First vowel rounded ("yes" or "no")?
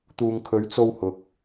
yes